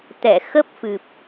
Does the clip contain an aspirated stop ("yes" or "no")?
no